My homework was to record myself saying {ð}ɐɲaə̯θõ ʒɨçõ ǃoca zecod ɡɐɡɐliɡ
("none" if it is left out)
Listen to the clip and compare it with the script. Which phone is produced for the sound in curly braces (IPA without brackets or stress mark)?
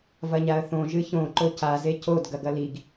v